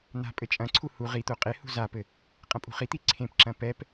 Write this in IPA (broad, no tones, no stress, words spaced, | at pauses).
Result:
n̪a̤ pʼɘt͡ʃʼɐ̃ǀʰu hu ʁit̪o qʼehṳ zapɘ | qʼɐ̃pʼṳχit̪i ǀʰẽpǁɐ̃ pɛp